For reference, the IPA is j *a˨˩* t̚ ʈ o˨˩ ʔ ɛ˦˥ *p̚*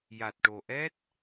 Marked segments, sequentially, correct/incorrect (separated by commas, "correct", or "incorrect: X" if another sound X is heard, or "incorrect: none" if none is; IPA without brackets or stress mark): correct, incorrect: t̚